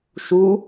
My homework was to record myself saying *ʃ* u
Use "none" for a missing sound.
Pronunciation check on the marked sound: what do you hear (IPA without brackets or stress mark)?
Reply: ʃ